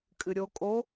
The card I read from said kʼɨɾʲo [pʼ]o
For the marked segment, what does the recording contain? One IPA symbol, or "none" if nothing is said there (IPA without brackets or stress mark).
kʼ